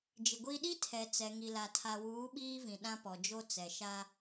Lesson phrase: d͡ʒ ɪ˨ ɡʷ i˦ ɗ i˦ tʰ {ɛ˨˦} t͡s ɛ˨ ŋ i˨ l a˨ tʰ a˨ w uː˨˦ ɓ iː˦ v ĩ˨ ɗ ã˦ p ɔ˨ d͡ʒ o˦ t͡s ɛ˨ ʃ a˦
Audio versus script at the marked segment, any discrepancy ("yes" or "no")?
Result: yes